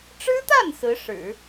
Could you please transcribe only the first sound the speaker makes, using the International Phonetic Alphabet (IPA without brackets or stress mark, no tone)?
ʈ͡ʂ